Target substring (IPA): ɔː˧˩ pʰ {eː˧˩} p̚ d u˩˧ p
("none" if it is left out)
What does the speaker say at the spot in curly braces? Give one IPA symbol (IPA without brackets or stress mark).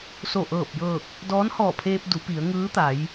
eː˧